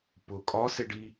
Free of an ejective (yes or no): no